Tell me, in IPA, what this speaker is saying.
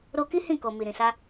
ɾo˧ki˦ hĩ˦˨ko˨ mi˨ɾĩ˨sa˧

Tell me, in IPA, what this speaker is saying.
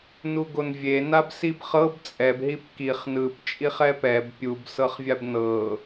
nuɡonvʲe nabsibχɤb t͡sʼɛb ɦipkiχ nɯp t͡ʃʼiχɛpɛb pʲub sɤχvʲabnɤ

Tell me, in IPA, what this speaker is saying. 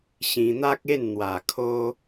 ɕĩ˧n̪a˦k̚e˥˧n n̪wa˨˩kʰo˧

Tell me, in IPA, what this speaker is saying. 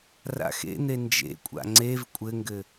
ra̰xḛn̪e nd͡ʒḛkʷʼa̰ ŋ͡ǀev kʷʼɘŋɡɘ

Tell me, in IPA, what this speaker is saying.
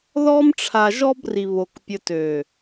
ðɔ˦mʈ͡ʂʰa˧ʒɔ˦b ri˧βo˧kpʲə˧ tø˨

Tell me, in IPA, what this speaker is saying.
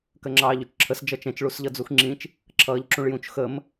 kɜŋ͡ǁɑːʎut͡ʃǁʰəs d͡ʒʌt͡ʃɛ̃t͡ʃ ɭusʎʌd͡zuxŋ͡ǁĩt͡ʃ | ǁʰʌːʎǁũɭjũt͡ʃ xəm

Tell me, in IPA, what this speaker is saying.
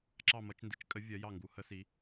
ǁɑ˦˨mʌ˨˦t͡ʃ ndi˨˦t͡ʃkʼə˨˦ vʲɜ˨˦jɑ˦˨ŋɡu˨˦ hə˨˦si˨˦

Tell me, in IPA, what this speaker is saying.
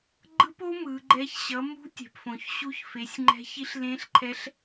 ɡ͡ǃɯ˦˥po˦˥ mɯ˨˦ɡ͡ǃɛ˦˥ç ɕʌ˨˦mṳ˦˥ tʲɛ̤˨pfõ˨çɕu˦˥ç fe˨˦sʲ ŋ͡ǃɛ̤˦˥ çi˦˥ɬlẽ˦˥ɬǃʰɛ˦˥ɬ

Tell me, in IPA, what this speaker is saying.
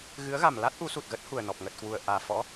ɣɨ˨˦ə̯ɣa˨˩mla˦˥t̚ ʔu˨˦su˨˩t̚ɣə˦˥t̚hu˨˩ə̯ nɔ˨˩p̚ ŋə˨˩t̚ kwu˨˩ə̯ ʔaː˨˩fɔ̰˧˥

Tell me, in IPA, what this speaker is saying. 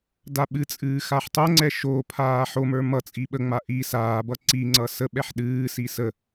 daɓɨt͡sʼɨː xaħtˤoŋ͡ǀɛ ʃopʰaː ħomə˞ mʌ t͡sʼiɓəŋ͡ma ʔi saːbʌ ǀiŋ͡ǀʌ səɓɛħ ɗɨːsi sə

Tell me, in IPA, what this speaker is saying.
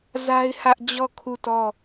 za˦ɪ̯hä˦ʔ d͡ʑɔ˦˨ kʰu˦˨tɔ˦˨

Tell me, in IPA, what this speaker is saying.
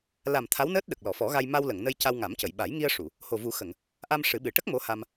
la˨˩m t̪ʰa˧˥wnəː˦˥t̚ɗə˨˩k̚ lɔ˨˩˨fɔ˨˩˦ɣa˧j ma˧wlə˨˩˨ŋnə˧j ca˧wŋa˨˩˦mcə˨˩˨j ɓa˨˩˦jŋi˧ə̯ʂu˨˩˨ | ho˨˩vu˨˩˦ xə˨˩˨ŋ | ʔa˧m ʂɨ˨˩˦ɓɨ˨˩ ʈə˦˥k̚ mo˧˥ha˧m

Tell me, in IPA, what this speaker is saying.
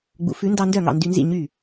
ɡ͡bṵ˩˥fʉ˩˥ndɑ˧ndœ˥˩ ŋɑ̰˥˩ndy˧nzḭ˥˩ ɲy˥˩

